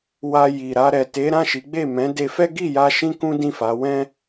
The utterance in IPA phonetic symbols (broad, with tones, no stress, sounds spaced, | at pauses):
w a˧ j i˨ ɾ a˧ ɾ ɛ˨ t e˨˦ ɾ ã˦˨ ʃ i˨˦ ɡ͡b e˦˨ m ɛ̃˨˦ d e˧ f ɛ˦ ɡ i˦˨ j a˧ ʃ ĩ˦ k ũ˦ d ĩ˦˨ f a˨˦ w ɛ̃˦